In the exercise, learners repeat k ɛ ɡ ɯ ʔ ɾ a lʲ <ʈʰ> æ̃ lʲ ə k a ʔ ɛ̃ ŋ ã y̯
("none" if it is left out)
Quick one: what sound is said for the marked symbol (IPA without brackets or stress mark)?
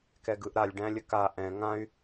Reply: ɖ